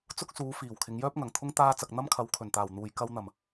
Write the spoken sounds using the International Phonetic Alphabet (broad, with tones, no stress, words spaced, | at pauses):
t͡sʊ˥k̚ suː˨˧fiː˨˩w kʰɪ˨˧ŋjœː˥p̚ŋɐ˨˩ŋt̪ʰʊ˥ŋ t̪aː˧ t͡sɐ˨k̚n̪ɐ˥mkʰɐ˨˧w kʰɵ˨˩nt̪aː˨˩wn̪uː˨j kɐ˧wn̪ɐ˨˩m